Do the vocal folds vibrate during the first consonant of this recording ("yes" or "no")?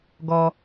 yes